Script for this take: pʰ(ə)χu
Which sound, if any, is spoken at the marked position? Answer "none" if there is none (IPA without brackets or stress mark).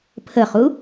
ə